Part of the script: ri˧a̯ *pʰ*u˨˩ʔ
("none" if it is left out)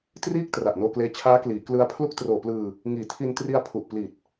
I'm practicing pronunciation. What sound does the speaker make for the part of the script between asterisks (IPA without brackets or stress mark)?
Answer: pʰ